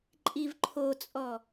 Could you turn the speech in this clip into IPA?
ǃʼivǃʰot͡sʼɔ

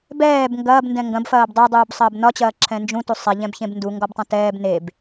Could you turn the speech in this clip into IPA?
bɛːb ŋɡɐːbndɛ̃ ŋɡɐ̃bfɐːb dˤedˤuːbsˤɐːb nɒt͡ɕɐːǁʰɛ̃ nd͡ʒũtu sˤɛʎɛ̃bçẽb nduŋɡɒbtˤɐ̃ tɛːb neb

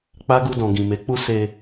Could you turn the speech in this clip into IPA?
k͡pa˦ɡu˧ dɔ̃˨ɡĩ˨me˨˦k͡pu˦ se˧

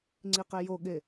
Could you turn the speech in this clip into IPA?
ŋ͡ǀiqejoɠe

